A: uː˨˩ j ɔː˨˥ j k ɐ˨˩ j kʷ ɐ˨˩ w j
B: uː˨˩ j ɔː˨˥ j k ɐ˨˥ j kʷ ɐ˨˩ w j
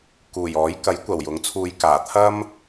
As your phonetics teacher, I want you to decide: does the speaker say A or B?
B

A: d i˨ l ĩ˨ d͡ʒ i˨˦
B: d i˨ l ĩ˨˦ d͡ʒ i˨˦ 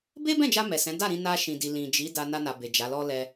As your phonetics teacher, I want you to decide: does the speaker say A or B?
A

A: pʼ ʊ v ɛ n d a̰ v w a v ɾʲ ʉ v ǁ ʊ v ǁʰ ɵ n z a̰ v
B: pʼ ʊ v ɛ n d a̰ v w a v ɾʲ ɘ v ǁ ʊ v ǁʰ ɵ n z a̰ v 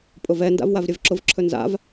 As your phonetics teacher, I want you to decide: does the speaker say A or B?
B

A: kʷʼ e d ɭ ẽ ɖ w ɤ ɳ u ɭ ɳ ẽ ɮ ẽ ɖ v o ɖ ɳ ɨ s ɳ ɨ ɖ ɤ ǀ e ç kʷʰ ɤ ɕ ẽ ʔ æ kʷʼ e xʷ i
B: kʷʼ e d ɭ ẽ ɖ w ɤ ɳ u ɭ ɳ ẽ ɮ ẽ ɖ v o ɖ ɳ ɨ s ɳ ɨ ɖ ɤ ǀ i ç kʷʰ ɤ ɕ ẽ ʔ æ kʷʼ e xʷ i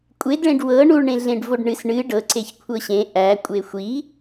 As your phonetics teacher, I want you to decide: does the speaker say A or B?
A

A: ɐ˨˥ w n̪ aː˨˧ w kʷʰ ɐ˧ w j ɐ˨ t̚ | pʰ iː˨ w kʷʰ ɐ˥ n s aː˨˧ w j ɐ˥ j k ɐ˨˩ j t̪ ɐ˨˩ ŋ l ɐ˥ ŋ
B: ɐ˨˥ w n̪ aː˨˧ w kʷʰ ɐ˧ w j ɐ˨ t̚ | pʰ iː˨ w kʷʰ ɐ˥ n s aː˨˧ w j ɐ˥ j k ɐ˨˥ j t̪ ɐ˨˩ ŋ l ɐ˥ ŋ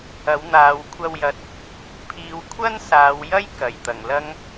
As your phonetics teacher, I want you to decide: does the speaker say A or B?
A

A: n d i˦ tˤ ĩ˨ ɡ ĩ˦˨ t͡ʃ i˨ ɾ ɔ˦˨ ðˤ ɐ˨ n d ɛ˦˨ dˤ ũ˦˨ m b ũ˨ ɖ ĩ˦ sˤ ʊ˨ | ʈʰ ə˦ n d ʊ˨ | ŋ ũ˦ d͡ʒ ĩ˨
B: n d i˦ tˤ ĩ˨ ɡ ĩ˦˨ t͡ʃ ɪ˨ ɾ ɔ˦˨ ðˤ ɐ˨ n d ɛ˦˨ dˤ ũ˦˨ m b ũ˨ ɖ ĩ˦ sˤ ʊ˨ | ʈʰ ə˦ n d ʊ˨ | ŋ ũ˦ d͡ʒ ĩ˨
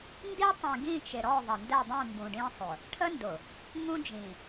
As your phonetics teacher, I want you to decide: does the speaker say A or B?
B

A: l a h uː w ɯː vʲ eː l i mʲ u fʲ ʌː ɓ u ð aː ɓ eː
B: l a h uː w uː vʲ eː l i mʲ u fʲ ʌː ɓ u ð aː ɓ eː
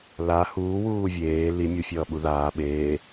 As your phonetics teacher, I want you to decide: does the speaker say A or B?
B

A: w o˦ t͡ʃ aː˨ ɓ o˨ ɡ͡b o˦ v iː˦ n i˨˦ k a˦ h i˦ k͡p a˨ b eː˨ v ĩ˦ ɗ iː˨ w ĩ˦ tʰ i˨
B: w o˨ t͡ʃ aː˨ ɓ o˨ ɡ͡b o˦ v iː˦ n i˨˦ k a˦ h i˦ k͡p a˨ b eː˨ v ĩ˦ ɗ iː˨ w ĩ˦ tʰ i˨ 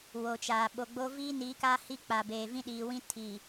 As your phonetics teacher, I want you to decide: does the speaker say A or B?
B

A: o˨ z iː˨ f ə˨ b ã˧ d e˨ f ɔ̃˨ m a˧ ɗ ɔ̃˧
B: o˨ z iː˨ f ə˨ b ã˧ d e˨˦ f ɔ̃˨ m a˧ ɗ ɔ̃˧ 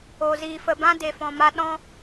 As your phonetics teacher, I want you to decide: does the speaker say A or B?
A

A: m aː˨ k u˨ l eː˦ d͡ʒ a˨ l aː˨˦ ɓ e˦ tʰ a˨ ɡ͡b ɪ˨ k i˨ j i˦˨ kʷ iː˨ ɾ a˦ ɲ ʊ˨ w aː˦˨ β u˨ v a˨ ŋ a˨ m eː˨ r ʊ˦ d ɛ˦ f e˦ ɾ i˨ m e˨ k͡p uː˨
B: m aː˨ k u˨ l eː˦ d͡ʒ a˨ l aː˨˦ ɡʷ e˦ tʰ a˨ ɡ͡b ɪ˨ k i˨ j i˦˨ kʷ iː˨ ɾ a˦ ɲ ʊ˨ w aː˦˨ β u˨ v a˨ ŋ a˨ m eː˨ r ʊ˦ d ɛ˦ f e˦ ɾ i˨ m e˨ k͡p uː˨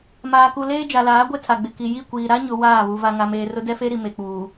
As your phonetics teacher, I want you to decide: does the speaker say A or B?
B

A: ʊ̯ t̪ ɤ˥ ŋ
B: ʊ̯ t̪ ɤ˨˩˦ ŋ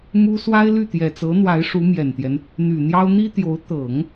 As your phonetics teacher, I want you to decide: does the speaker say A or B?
B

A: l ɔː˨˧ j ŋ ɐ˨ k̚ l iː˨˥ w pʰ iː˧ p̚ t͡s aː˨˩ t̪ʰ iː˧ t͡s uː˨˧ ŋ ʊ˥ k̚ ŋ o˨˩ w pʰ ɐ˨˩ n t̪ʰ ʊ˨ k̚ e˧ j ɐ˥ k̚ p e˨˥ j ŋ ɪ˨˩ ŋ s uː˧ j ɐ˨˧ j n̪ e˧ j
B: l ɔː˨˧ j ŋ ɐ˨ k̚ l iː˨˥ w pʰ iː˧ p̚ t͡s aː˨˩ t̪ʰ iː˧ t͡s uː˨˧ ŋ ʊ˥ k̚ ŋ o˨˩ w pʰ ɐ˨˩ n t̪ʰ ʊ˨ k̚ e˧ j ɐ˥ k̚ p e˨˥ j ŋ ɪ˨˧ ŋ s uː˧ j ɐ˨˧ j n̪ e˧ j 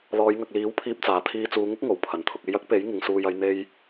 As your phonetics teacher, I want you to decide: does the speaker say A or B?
B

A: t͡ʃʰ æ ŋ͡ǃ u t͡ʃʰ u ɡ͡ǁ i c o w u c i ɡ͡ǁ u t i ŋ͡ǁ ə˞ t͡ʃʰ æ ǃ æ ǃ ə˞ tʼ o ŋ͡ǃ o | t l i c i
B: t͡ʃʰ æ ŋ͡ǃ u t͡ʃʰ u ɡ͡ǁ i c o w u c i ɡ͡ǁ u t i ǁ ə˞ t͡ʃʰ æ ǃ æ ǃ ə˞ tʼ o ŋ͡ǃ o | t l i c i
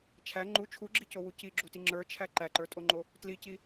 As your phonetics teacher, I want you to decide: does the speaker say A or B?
A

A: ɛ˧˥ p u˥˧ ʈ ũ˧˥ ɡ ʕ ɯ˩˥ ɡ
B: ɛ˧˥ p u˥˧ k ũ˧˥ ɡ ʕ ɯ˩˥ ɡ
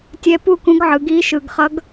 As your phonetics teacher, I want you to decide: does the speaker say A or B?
B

